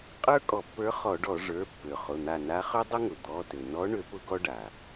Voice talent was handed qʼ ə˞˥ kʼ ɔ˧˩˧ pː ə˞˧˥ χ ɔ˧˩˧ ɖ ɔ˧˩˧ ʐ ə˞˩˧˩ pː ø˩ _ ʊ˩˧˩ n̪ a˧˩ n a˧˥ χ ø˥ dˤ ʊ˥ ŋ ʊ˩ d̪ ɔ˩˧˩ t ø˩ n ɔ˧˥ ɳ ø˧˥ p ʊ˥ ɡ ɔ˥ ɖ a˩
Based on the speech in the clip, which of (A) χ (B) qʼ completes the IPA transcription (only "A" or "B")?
A